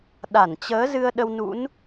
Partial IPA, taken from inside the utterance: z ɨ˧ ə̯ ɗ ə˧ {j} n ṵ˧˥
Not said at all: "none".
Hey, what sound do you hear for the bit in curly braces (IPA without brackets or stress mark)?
w